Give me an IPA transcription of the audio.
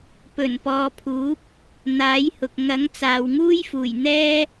pɵ˨˩npɔː˨pʰuː˨˥p̚ | n̪aː˨˥jhʊ˨k̚ ŋɐ˨˥ŋt͡saː˨wŋuː˥jfuː˨˩j n̪ɛː˥

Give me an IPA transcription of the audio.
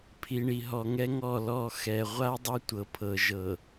pʰi˨ɳi˨ɦɔ˨ ŋɛ˦ŋɔ˦˨ lɔ˦˨xɛ˨ ʁʷa˦dˤe˦ tʷɤ˨pʰɤ˨ ʒɤ˨

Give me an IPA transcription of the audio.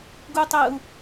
ɡutˤəu̯

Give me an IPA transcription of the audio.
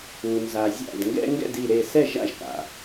u˩nza˩zʲa̰˧˩d ŋɡɛ̰˦ŋɡɛ̰˥˩di˧˩ɾe˧˩ sɛ˥˩ʒa̰˥˩ʒka̰˩

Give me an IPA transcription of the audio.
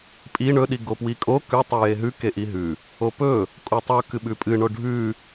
pʼi ɳɵ ɗiɡopwikʼo kʉ tˤujeɦʉ keʔiɦʉ | opɵ | kʼutˤu kɨɓʉpʼɨ ɳoɖʱʉ

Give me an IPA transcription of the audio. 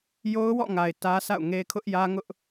jo˦ʊ̯wɔ̰˦˨ŋa˨ɪ̯ tä˦sa̰˦˨ʊ̯ŋe˦ kʰʊ˦ʔjä˦ŋʊ˦ʔ

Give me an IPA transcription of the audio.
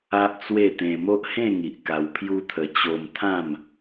a˦ʔt͡swe˥˧t̪ẽ˧ mo˦ʔhẽ˥˧ŋi˨ʔ ka˧wpʰju˦t̪ʰə˧ t͡ɕo˧mt̪ʰã˥˧m

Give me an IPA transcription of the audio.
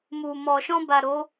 mu˨mɔ˨ ʃɔ̃˧ba˨ ɾo˨˦

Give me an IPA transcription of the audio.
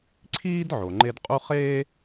ǀʰiː˥d ʕo˩ŋ͡ǃe˦dqʼu˥ χeː˥

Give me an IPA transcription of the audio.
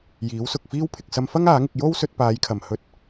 jiː˨˥wsʊ˨k̚fiː˥w pʰɪ˨k̚sɐ˧mfɐ˥ŋ aː˨˥ŋɪ˧k̚ jo˥wsɵ˧t̚ paː˨˧jkʰɐ˨˩mhɵ˧t̚

